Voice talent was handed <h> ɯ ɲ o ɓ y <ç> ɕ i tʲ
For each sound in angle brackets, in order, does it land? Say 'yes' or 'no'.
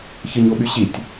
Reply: no, no

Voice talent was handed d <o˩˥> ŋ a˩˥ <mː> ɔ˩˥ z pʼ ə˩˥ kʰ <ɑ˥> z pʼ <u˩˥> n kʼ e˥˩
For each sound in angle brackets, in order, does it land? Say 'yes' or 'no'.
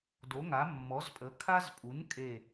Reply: yes, yes, no, yes

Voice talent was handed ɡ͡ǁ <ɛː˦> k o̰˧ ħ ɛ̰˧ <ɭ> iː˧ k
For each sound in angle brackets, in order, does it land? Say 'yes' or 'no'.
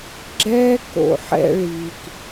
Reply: yes, yes

